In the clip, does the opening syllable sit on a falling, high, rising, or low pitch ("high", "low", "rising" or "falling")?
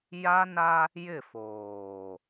high